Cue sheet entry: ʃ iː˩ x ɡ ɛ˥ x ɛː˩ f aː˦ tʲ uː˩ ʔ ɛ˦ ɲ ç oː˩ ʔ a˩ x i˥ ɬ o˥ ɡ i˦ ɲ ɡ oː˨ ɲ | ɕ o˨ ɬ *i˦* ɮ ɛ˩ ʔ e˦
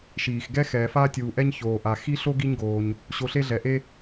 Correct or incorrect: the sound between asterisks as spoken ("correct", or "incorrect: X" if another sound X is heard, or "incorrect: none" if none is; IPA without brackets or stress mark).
incorrect: e˦